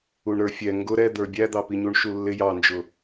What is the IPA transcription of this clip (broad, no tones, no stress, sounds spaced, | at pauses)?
u ɳ ɾ ə˞ fʲ ɛ ŋ ɡ ʊ ɾ ɛ d̪ ə˞ bʲ æ d̪ ɑ p i ɲ u ɳ ʃ u lː ɪ j ɑ n d͡ʒ ʊ